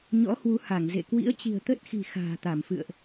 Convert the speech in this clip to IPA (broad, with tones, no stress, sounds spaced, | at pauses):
ɲ ɔ̰˧˥ h w u˨˦ h a˧˩ ŋ z ḛ˧˨ k w ḭ˧˥ ə̯ t͡ɕ i̤˨˩ ə̯ t̪ ə˦˥ t̚ x i̤˨˩ x a̤ː˨˩ t̪ a˧˩ m f ɨ̰˧˨ ə̯ ʔ